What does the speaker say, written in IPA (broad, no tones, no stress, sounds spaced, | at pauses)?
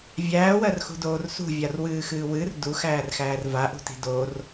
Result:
vʲ æː w ɜ r x ṳ d oː r s ṳ vʲ a r w ɨː x ɨː w ɨ r d u x æː r x æː r v a ʔ ṳ t i̤ d o r